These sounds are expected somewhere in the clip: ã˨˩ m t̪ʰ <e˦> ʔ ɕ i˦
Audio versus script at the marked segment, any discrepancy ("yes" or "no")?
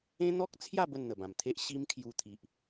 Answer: no